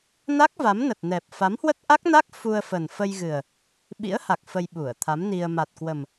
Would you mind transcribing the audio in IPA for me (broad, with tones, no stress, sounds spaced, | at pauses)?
n a˦˥ k̚ v a˨˦ m n ə˨˩ t̚ n ɛ˨˩ p̚ f a˨˦ m h w ə˦˥ t̚ ʔ a˦˥ k̚ n a˦˥ k̚ f u˧ ə̯ f ə˨˩ n f ə˧ j ɣ ɨ˨˩ ə̯ | ɓ ḭ˧˥ ə̯ h a˨˩ k̚ f ə˧ j ɓ u˧˩ ə̯ t̪ʰ a˨˦ m n i˧ ə̯ m a˨˩ t̚ k w ə˨˩ m